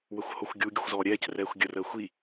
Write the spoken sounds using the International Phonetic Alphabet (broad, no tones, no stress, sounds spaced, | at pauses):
w ə xʷ h o xʷ ɡʲ u ɡʲ ə xʷ z ɔː ɾʲ ɛː c r ɛː xʷ ɡʲ ə r əː xʷ i